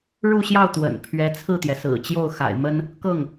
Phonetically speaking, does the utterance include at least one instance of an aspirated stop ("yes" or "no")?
yes